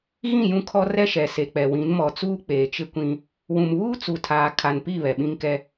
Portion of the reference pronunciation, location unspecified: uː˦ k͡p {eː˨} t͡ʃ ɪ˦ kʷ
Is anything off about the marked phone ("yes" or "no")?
no